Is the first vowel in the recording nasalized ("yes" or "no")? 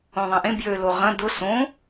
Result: yes